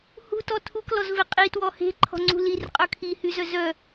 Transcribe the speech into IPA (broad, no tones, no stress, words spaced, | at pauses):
hṳtɔ tʰuklɔzve qʼitwɔ he̤ǃʰɔ̤ŋ͡ǀṳ lirqʼœ kʰihyzœ zœ